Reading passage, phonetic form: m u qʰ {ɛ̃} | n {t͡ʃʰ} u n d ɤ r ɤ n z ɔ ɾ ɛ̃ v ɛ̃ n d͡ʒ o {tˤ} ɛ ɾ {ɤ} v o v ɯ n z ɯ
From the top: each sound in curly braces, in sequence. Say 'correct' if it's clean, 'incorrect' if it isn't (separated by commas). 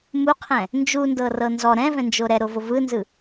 correct, incorrect, incorrect, incorrect